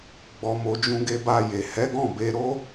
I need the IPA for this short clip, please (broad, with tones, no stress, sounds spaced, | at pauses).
ɡ͡b ɔ˨ m o˨ d͡ʒ ũ˧ ɡ e˧ b a˧ j e˨ h ɛ˨˦ ɡ ɔ̃˦˨ b e˧ ɾ o˦